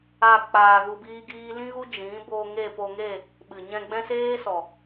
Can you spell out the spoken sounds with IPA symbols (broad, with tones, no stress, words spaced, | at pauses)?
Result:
a˦˨ k͡paː˧ɣu˧biː˦ ɡiː˦ lĩ˦ɣu˦ d͡ʒĩ˨˦bo˧ ŋe˦˨po˧ŋe˦˨ | ɓɨ˨ɲɛ̃˧ ɡ͡bɛ̃˦seː˦sɔ˨